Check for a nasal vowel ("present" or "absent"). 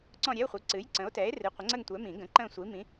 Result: present